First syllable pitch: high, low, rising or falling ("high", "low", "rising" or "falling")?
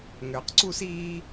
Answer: low